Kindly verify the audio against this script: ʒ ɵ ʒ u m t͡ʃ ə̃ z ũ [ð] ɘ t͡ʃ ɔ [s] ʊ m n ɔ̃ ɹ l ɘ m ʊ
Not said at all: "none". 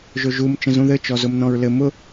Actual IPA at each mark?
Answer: ð, z

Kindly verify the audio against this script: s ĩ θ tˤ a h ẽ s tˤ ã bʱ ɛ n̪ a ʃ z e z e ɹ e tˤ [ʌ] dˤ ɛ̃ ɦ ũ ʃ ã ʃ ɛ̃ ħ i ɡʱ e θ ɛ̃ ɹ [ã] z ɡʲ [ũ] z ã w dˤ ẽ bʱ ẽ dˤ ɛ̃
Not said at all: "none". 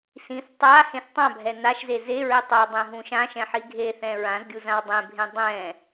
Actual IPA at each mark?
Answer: ʌ, ã, u

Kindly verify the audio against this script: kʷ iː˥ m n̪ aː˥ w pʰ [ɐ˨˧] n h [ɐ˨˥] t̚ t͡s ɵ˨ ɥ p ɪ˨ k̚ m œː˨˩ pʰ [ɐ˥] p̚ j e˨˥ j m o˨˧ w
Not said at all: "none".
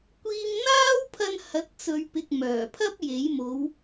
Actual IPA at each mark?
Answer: ɐ˧, ɐ˨˥, ɐ˥

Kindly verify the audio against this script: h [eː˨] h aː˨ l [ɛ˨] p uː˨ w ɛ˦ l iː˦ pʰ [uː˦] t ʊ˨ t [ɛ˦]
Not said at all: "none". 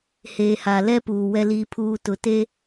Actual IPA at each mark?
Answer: eː˨, ɛ˦, uː˦, e˦

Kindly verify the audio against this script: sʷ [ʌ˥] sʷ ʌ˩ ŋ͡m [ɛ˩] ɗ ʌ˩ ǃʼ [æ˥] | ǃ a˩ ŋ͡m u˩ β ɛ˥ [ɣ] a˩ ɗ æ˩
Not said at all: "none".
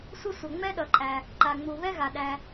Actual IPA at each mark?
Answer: ʌ˥, ɛ˥, æ˩, ɣ

